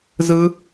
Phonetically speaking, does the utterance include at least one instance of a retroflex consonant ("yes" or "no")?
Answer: no